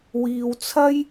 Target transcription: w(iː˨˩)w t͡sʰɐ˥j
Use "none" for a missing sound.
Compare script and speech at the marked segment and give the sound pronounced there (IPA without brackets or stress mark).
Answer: iː˧